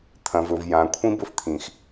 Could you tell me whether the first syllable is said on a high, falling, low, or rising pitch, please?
low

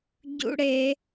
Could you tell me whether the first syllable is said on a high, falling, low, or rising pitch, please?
high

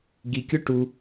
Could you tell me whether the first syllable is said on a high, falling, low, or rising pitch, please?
low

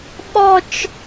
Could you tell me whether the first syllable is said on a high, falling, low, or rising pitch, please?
falling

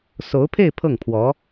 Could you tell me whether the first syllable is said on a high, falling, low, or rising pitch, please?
rising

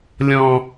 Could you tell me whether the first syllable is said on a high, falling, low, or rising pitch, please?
low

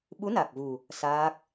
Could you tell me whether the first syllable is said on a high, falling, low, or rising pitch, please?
rising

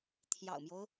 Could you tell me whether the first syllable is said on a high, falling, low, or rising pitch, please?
low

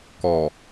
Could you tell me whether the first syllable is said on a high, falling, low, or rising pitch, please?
low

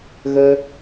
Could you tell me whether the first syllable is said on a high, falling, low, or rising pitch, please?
high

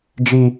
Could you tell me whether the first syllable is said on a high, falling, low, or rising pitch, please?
high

